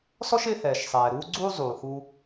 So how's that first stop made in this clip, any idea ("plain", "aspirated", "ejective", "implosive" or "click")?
click